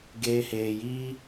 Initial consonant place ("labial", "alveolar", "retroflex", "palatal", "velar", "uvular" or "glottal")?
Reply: velar